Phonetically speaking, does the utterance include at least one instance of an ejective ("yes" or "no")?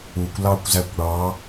no